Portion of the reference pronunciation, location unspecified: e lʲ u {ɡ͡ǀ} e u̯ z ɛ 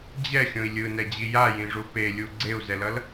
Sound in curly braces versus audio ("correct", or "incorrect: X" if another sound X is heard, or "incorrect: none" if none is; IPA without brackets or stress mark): correct